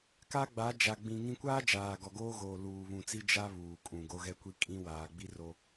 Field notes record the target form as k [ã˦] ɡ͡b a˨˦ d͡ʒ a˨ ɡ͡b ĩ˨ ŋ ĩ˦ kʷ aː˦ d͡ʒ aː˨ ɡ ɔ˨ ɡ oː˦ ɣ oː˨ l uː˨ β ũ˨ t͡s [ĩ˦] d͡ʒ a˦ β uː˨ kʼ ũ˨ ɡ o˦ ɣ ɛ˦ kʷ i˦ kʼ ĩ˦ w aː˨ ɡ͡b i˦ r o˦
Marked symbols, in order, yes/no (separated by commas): no, no